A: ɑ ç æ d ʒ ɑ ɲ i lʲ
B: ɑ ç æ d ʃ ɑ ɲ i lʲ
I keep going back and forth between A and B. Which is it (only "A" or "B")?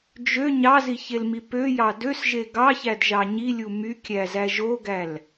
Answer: A